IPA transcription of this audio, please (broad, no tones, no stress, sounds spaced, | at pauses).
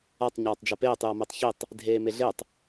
a tˤ ɲ aː tˤ d͡ʒ a p eː tˤ j ʌ m e tˤ ç i tˤ | dʱ eː m e ɮ e tˤ